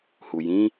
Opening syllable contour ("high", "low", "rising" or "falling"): low